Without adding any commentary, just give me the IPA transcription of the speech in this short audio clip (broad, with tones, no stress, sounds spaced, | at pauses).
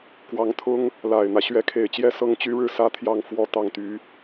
k w ɑ˧˥ ŋ t̪ʰ ʊ˥ ŋ | l a˨˩ ɪ̯ n̪ ä˦ ɕ ɥ ɛ˧˥ kʰ e˨˩ ɪ̯ t͡ɕ j ɛ˥˩ s ɤ˥ ŋ t͡ɕ y˥ ɻ ɻ̩˥˩ s ä˥ t̪ʰ j ɑ˥˩ ŋ f w ɔ˧˥ t̪ ɑ˨˩ ŋ t̪ y˧˥